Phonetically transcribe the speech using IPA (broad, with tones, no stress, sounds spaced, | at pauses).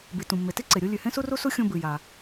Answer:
b i˩ t ũ˩ mː e˩ t i˥ ǀ e˩ ɾʲ o˥ lʲ ʉ˩ h ẽ˥ s u˥ r u˥ s u˥ xʲ õ˥ b ɨ˩ j a˩